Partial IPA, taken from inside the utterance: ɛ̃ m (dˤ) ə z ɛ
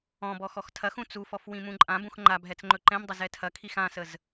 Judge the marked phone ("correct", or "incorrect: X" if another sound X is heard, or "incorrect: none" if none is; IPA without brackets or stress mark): correct